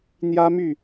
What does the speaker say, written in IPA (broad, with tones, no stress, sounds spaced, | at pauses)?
n̪ j ä˥ m y˥˩